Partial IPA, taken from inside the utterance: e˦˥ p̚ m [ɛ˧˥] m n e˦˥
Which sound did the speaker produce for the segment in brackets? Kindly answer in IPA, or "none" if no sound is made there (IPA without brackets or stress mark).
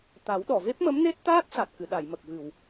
ə˧˥